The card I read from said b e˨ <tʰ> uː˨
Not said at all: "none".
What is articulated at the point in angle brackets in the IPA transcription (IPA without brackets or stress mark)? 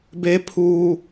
pʰ